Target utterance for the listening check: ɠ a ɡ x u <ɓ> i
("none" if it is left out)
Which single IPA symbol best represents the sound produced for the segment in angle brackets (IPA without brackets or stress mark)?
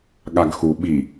ɓ